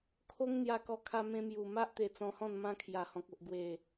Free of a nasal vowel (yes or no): no